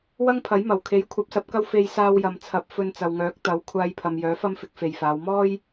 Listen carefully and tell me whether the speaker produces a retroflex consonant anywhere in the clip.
no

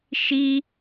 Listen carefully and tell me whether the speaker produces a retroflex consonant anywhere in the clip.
no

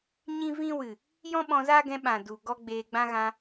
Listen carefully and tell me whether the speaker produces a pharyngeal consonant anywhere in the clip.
no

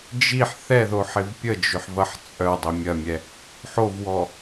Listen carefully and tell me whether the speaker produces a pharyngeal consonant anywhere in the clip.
yes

